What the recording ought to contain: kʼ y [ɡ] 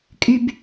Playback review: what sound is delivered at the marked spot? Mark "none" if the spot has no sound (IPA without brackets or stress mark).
b